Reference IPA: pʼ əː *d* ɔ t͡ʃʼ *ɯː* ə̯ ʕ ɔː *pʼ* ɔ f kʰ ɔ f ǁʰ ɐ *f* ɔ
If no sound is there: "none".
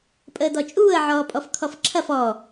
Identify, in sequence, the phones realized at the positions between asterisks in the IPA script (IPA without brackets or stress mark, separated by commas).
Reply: d, uː, pʼ, f